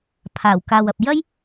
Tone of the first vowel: low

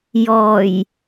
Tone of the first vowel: low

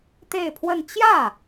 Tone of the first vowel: falling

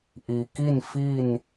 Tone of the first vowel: low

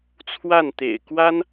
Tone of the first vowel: falling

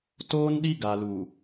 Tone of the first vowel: high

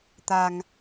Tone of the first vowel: low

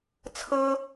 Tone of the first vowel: high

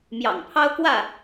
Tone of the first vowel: low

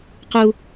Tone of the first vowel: high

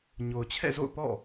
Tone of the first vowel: low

